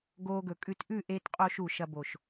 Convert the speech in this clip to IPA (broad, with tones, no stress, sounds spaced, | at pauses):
ɡ oː˧ ɡ ɵ˨˩ kʼ ʉ˧ t ʔ ʉ˥˨ ʔ eː˧ t qʼ oː˧ ʃ u˨˩ ʃ ɐ˧ b o˨˩ ʃ